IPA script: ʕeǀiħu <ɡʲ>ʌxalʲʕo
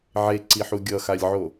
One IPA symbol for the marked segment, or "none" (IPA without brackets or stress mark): ɡʲ